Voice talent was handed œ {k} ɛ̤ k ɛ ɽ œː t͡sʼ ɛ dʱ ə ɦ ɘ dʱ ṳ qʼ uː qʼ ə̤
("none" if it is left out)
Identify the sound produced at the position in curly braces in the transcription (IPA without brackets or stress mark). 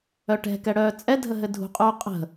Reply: ʈ